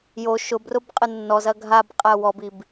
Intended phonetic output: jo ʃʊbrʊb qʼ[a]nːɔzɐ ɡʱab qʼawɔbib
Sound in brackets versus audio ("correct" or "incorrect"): incorrect